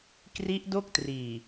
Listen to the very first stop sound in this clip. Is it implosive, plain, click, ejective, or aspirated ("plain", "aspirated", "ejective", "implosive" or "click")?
plain